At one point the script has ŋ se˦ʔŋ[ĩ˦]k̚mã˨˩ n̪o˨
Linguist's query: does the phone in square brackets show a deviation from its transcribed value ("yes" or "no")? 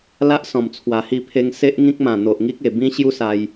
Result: no